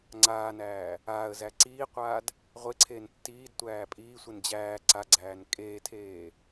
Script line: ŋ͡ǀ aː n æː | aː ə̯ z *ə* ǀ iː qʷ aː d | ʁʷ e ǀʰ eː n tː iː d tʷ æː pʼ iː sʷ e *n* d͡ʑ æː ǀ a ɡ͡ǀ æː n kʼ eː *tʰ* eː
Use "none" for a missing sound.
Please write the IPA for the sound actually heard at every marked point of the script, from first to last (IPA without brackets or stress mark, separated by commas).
æ, n, tʰ